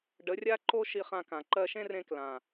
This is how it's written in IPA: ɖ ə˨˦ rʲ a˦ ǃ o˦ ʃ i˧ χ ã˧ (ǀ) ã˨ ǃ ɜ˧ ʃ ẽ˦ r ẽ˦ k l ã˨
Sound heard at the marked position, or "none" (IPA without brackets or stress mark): k